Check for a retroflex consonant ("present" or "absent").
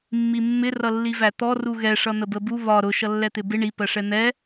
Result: present